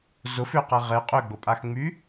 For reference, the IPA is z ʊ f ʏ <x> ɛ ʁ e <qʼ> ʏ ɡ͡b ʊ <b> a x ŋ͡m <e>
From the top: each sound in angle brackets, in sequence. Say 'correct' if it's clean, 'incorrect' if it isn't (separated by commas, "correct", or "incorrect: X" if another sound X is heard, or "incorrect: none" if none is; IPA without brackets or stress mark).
incorrect: q, correct, incorrect: pʼ, incorrect: y